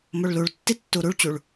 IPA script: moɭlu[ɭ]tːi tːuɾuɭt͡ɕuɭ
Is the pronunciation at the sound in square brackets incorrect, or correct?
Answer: correct